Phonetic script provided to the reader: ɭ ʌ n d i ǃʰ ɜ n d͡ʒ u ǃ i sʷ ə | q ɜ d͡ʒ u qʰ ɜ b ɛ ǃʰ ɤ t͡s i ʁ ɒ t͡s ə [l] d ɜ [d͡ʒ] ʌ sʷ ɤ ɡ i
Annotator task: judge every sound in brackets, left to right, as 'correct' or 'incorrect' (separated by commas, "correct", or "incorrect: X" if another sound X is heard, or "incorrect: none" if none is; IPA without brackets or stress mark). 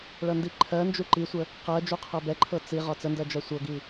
incorrect: n, correct